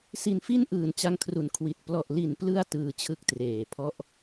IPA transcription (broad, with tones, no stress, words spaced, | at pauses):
si˧nfi˥˩nʔɯː˨˩n t͡ɕa˧ŋ kʰru˩˦n kʰwi˨˩t̚ plɔ˨˩ʔli˨˩nplɯ˧a̯ tɯː˧t͡ɕʰɯ˥˩k̚treː˨˩pʰɔ˦˥ʔ